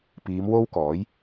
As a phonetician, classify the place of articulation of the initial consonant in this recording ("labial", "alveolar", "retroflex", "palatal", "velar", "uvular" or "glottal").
labial